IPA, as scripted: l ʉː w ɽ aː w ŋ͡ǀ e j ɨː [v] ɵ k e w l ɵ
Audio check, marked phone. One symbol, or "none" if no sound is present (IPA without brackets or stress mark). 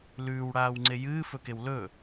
f